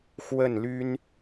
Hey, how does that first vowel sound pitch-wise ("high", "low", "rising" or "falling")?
falling